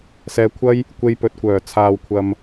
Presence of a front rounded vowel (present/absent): present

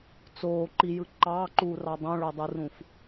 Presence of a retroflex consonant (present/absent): present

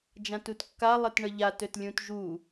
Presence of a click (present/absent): absent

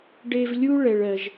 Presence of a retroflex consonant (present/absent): present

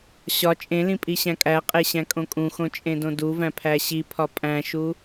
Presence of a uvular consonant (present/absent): present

